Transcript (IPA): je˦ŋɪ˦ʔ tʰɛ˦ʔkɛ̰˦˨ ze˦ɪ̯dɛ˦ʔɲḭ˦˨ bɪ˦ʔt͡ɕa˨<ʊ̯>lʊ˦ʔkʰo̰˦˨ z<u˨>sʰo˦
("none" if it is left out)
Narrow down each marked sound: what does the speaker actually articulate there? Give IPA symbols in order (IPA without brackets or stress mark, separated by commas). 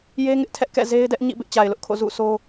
ɪ̯, ṵ˦˨